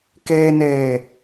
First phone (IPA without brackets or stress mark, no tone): k